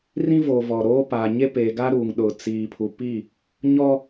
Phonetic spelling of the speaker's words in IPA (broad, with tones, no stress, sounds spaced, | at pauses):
r ĩ˦ v oː˨ v ɔ˨ ɾ oː˦ p a˨ ɲ e˦ p e˨ ɡ a˦ ɾ u˨ ŋ ɗ ʊ˨ t͡s iː˨ pʰ u˨ p i˦˨ | ɲ ɔ˦